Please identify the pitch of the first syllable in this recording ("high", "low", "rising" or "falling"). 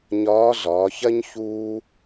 rising